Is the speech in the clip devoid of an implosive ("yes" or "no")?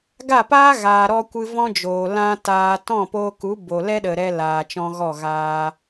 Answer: no